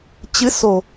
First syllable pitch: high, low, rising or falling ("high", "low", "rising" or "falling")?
rising